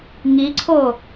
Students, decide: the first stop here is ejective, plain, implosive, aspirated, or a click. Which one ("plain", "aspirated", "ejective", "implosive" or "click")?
click